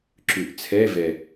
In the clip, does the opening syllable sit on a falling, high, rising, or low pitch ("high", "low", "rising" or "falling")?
low